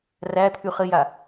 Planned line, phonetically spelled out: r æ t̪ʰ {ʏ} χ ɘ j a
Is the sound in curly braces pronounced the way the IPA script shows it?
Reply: no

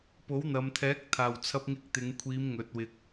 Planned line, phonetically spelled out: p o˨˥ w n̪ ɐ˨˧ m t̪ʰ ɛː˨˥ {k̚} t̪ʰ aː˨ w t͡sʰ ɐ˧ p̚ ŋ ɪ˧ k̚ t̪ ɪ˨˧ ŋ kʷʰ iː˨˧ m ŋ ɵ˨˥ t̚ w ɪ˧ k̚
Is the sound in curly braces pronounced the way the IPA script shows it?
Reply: yes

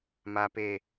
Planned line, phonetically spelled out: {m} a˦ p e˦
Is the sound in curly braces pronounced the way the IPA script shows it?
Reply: yes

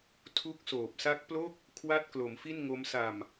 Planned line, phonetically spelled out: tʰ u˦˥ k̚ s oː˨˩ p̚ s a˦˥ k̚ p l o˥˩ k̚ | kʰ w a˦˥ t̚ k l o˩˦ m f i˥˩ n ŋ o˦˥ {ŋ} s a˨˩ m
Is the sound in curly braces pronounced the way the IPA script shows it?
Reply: no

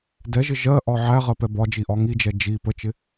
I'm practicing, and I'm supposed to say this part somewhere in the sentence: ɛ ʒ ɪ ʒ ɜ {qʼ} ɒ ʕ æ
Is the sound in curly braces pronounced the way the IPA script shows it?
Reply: no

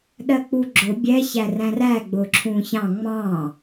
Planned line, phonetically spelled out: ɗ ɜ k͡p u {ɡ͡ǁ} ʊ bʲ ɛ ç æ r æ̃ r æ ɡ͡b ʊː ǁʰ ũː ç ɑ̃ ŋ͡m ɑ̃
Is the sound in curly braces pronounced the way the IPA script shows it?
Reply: yes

